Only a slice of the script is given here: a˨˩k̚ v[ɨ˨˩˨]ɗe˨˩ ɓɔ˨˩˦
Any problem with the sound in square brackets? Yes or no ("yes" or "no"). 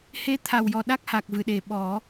no